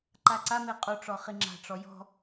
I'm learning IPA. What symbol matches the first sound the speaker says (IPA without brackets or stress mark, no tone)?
ǃ